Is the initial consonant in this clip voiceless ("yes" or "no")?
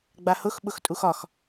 no